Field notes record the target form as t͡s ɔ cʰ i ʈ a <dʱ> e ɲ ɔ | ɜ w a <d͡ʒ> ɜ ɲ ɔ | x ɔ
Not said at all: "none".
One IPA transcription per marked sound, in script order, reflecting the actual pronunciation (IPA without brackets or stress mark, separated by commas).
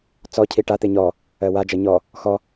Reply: t̪, d͡ʒ